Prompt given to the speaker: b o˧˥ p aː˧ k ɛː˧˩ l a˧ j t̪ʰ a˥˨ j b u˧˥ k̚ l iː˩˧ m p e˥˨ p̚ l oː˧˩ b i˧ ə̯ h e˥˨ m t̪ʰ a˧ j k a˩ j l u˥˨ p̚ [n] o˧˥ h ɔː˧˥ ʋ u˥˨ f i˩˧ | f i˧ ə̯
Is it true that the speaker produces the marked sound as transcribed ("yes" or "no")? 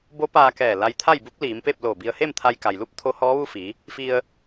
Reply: no